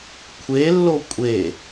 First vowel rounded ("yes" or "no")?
no